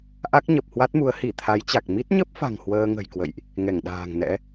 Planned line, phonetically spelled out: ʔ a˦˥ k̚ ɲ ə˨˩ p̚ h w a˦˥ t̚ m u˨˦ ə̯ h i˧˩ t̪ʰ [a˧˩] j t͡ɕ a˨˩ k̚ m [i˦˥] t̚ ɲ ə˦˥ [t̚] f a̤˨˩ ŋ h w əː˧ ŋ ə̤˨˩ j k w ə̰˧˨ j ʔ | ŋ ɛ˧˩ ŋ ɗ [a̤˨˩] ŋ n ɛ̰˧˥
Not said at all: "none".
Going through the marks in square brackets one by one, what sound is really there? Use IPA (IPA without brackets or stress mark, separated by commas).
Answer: a˨˦, i˦˥, p̚, a̤ː˨˩